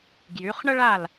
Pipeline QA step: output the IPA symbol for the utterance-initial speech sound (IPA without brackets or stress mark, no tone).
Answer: ɡ